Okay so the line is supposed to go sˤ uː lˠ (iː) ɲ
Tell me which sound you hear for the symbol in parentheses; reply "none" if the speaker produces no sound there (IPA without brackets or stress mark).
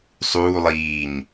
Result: iː